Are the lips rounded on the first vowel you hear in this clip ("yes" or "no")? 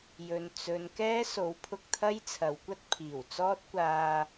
yes